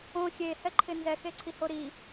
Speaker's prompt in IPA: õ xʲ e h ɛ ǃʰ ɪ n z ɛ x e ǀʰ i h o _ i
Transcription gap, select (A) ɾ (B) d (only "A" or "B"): A